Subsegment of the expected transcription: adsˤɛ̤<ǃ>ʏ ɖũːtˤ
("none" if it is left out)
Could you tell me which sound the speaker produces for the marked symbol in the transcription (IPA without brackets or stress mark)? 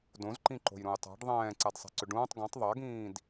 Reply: ǀ